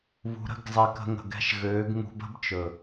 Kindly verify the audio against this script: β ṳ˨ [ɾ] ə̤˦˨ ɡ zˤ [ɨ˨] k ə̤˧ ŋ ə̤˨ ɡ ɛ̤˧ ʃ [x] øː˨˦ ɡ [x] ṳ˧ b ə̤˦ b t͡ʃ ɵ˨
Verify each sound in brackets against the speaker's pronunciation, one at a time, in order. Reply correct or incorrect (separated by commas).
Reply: correct, incorrect, incorrect, incorrect